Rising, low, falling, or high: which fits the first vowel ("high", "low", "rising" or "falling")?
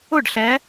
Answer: falling